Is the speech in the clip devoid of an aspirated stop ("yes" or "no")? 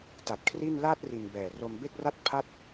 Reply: no